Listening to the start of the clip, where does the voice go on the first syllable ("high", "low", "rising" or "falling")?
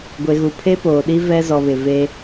high